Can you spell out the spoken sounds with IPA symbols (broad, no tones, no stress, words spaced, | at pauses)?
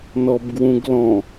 nɔbɡwũɡlɔ̃